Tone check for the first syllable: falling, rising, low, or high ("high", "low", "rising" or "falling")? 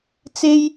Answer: high